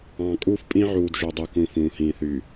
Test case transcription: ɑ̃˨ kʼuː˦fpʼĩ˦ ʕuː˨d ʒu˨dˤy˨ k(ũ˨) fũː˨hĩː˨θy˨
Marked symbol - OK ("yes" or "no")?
yes